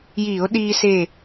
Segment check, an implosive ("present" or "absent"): present